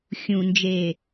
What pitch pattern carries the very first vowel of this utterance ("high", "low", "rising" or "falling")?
low